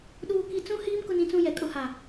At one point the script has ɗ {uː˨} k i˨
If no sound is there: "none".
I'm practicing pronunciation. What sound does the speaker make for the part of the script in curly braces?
uː˨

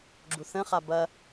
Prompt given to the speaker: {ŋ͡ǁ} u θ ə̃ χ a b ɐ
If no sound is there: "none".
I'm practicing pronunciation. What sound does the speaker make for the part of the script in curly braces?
ɡ͡ǁ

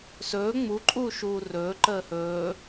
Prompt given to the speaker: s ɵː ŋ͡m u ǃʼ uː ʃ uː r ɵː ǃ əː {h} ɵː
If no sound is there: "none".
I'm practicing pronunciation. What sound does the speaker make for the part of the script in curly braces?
h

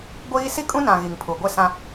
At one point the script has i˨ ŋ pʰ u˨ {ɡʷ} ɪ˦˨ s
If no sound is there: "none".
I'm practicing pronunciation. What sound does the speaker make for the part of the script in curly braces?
ɡʷ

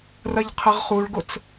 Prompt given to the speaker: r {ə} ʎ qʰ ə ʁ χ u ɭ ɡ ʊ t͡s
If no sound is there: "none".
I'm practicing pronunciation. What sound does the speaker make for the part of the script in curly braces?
ɐ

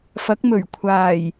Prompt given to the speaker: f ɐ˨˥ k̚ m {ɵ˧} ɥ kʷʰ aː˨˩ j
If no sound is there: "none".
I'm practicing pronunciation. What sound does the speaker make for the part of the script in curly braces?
ɵ˨˩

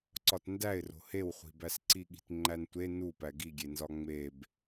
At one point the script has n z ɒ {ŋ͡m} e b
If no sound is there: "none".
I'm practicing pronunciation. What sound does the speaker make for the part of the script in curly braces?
ŋ͡m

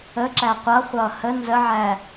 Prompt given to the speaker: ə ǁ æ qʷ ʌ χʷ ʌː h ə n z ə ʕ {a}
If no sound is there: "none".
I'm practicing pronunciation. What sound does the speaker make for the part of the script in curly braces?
æ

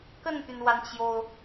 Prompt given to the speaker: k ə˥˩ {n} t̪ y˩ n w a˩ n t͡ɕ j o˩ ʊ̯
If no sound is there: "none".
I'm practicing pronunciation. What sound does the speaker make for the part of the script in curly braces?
n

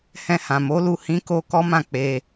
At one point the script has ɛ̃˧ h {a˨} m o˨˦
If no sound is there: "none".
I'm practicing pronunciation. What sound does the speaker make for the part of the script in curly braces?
ã˨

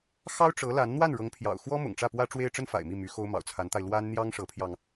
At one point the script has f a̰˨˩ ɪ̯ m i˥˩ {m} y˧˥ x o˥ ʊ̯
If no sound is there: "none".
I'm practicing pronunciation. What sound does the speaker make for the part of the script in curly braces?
m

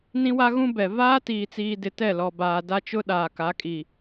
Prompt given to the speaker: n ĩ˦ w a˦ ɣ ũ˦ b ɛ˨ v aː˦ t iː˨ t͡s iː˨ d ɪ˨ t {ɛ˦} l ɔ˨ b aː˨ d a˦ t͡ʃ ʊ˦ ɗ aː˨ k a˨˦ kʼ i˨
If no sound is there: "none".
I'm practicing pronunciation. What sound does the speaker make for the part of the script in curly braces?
ɛ˦˨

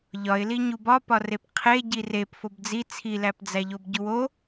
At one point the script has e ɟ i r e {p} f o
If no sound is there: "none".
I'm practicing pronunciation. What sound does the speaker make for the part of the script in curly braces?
p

